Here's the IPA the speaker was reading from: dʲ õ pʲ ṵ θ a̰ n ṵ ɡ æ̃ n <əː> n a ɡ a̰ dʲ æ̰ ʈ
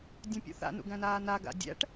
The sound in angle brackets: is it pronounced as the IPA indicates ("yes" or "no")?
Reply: no